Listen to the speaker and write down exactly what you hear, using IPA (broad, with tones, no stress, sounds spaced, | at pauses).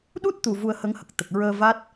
ɗ u˦˥ t̚ t̪ u˨˩ v u˧ ə̯ h ə˧˥ ŋ h ə˨˩ k̚ t̪ ə˨˩ k̚ ɹ əː˧ v a˦˥ t̚